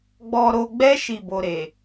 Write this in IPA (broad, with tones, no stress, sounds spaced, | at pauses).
ɡ͡b ɔ˧ ɾ o˧ ɡ͡b ɛ˦ ʃ i˦˨ b o˧ ɾ e˨